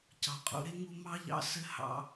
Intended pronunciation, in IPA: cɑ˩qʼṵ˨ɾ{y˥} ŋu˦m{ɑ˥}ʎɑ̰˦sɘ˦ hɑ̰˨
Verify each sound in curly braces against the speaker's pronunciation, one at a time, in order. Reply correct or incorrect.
incorrect: e˥, correct

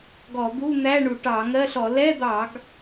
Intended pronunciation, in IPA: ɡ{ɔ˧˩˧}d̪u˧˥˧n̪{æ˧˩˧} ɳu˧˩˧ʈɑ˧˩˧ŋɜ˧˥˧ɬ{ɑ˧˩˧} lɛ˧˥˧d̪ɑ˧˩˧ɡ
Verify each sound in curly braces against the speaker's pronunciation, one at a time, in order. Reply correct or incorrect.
correct, incorrect: æ˧˥˧, incorrect: ɔ˧˩˧

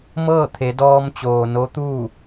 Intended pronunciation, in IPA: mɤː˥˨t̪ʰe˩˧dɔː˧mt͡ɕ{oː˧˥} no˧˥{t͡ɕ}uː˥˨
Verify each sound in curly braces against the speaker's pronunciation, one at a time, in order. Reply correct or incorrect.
incorrect: oː˩, incorrect: t̪

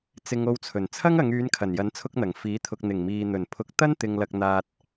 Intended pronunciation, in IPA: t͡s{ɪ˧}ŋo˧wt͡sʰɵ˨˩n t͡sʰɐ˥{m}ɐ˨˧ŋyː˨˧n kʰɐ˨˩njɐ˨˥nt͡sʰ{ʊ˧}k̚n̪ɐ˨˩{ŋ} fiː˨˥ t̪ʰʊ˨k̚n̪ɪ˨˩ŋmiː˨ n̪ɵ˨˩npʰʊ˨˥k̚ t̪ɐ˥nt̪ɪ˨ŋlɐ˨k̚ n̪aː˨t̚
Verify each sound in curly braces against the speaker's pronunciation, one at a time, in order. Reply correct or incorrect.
correct, incorrect: ŋ, correct, correct

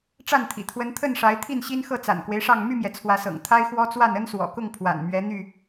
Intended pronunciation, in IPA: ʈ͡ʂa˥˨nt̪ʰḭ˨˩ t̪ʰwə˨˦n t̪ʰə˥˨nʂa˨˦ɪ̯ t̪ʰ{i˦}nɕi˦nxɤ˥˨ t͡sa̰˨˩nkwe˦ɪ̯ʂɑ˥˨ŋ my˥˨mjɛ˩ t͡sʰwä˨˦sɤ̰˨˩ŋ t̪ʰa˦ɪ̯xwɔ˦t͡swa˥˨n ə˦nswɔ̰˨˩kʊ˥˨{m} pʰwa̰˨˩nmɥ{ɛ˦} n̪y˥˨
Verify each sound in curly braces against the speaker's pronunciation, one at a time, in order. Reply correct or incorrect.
incorrect: i˥˨, incorrect: ŋ, incorrect: ɛ˨˦

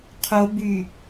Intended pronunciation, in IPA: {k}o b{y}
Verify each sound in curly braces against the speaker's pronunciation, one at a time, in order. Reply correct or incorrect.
incorrect: qʰ, correct

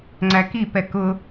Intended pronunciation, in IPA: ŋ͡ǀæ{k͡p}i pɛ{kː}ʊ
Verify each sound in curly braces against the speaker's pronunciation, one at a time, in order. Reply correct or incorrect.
incorrect: k, incorrect: k

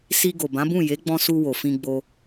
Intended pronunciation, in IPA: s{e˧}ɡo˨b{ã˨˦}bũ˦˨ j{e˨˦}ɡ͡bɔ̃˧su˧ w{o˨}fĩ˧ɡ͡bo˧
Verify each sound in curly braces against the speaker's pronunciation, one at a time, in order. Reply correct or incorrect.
incorrect: i˧, correct, correct, correct

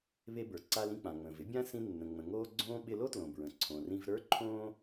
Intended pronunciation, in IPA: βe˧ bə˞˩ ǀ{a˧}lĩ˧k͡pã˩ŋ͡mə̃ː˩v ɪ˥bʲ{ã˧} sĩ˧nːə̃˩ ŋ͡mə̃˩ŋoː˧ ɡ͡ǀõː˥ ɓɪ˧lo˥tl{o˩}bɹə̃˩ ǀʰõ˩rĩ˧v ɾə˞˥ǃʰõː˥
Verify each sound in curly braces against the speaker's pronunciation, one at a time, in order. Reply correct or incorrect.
correct, incorrect: ã˥, incorrect: õ˩

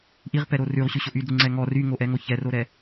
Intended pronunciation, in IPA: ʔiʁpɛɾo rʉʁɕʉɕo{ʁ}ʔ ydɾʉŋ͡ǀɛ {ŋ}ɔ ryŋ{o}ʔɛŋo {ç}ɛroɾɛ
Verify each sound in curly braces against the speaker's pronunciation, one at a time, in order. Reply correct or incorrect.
incorrect: none, correct, correct, correct

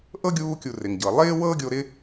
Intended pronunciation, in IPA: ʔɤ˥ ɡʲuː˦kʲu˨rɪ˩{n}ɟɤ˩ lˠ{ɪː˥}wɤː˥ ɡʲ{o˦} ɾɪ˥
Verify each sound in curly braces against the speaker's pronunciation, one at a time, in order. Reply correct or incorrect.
incorrect: ŋ, correct, correct

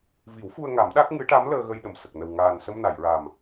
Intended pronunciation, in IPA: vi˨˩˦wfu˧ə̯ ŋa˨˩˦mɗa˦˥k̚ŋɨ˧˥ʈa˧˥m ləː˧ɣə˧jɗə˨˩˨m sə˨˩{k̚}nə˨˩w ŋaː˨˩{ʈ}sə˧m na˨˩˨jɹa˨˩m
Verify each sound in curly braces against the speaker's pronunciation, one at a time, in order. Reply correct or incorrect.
correct, incorrect: n

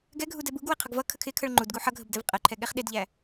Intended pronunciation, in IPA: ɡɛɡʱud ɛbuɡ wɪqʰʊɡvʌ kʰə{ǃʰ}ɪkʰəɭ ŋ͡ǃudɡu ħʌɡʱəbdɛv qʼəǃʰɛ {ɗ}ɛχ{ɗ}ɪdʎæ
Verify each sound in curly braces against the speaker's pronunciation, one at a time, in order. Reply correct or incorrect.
incorrect: kʰ, incorrect: ɠ, correct

